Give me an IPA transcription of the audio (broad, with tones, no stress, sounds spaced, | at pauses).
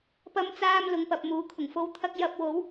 p ɐ˧ m t͡s aː˧ m l ʊ˨˧ ŋ p ɐ˨ p̚ m uː˨˧ kʰ ʊ˨˩ ŋ f o˥ w t̪ʰ ɐ˥ k̚ j ɐ˧ p̚ w o˨˥ w